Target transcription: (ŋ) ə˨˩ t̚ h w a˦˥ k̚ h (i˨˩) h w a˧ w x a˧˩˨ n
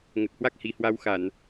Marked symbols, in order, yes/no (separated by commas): yes, yes